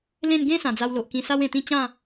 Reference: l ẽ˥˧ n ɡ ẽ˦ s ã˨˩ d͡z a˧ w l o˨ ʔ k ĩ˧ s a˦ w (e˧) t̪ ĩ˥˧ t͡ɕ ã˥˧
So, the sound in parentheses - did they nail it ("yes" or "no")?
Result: no